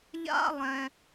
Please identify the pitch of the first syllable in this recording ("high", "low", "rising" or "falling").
high